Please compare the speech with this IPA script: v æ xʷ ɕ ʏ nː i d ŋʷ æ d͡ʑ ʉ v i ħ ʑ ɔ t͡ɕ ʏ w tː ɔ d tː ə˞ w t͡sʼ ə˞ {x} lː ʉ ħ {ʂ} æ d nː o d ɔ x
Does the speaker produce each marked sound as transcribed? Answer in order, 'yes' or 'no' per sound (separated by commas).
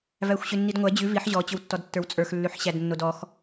yes, no